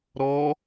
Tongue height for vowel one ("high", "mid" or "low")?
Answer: mid